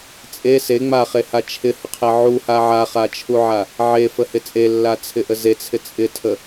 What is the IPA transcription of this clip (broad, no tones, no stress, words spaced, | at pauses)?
t͡sʼe se ŋ͡maχeha t͡ʃʰɪhəqʰe ʕuha ʕaχat͡ʃʰuʕa | ʕefəhɪ t͡sʼelːat͡sʰɪʔə zet͡sʰɪ t͡sʼɪtʰə